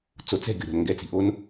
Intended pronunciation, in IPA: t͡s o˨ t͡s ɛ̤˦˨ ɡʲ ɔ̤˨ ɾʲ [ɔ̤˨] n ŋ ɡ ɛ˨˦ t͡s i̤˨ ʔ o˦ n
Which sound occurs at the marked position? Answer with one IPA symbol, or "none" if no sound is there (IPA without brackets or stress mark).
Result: ɔ̤˨